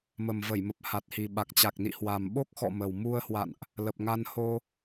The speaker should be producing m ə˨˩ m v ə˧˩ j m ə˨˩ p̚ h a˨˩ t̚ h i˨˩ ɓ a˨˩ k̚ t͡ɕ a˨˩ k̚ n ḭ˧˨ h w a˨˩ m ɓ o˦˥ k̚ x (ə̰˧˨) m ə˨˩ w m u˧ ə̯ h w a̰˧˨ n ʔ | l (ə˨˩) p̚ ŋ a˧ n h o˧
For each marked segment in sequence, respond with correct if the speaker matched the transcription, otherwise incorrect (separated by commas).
incorrect, correct